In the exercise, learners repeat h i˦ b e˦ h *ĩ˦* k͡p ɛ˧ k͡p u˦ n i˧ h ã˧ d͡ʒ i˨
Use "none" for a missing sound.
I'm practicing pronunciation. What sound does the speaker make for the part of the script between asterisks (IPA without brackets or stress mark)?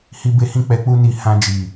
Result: ĩ˦